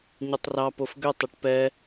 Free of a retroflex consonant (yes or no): no